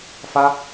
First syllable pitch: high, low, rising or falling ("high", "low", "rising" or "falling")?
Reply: high